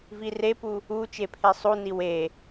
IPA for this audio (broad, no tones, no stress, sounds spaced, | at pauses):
v i r e p u | u t͡ʃ e pʰ e sˤ u n i w e